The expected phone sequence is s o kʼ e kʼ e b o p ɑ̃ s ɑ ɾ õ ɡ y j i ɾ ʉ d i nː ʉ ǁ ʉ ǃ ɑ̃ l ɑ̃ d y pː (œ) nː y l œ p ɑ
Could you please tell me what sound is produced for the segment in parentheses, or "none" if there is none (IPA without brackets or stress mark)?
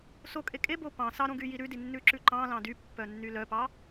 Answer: œ